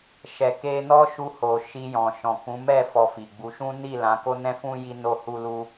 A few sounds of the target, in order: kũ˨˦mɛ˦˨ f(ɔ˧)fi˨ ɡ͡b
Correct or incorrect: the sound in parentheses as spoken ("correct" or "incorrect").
correct